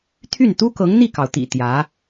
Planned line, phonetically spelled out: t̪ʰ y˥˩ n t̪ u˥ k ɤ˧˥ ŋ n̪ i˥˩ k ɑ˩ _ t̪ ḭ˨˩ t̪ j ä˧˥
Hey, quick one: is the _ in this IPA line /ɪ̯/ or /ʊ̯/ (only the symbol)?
ʊ̯